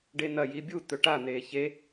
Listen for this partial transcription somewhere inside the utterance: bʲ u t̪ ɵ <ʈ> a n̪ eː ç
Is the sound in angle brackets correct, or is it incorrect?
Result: correct